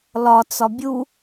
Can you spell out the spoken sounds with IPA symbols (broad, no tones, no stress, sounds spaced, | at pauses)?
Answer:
l ɒ t͡s ɒ bʲ u